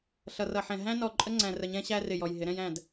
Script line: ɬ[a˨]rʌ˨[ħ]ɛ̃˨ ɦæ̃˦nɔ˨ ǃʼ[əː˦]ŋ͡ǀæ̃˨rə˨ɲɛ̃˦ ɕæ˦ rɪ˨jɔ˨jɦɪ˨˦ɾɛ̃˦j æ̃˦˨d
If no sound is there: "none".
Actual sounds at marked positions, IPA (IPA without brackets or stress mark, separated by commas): ʌ˨, ħ, ə˦